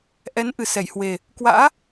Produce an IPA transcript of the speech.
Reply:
ʔ ɛ˨˦ n ʔ ɨ˨˩ s ɛ˧˩ j h w e˨˩ | k w a̰ː˧˥

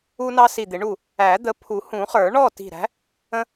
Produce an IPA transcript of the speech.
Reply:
u˦ n ɑ˦ s i˧˩ d̪ ɪ˨˩˦ ɳ u˥˨ | æ˨˩˦ d̪ ə˨˦ pʰ u˨˩˦ h ũ˨˩˦ χ ə˞˨˩˦ ɳ ɔ˥˨ t i̤˧˩ ɾ æ̤˨˦ | ə̃˦

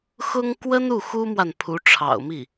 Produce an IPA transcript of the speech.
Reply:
x ʊ˥ ŋ k w ə˥ n u˥˩ x u˥ m w a˨ n pʰ u˧˥ ʈ͡ʂʰ ɑ̰˨˩ ʊ̯ m i˥˩

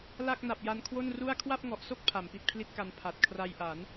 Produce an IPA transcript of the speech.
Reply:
l a˥˩ k̚ n a˨˩ p̚ j a˧ n kʰ w o˥˩ n r u˥˩ a̯ kʰ w a˥˩ p̚ ŋ ɔ˨˩ ʔ s o˥˩ k̚ pʰ a˩˦ m p i˨˩ t̚ pʰ l i˥˩ t̚ k a˧ n pʰ a˨˩ t̚ kʰ r a˧ j ʔ a˩˦ n

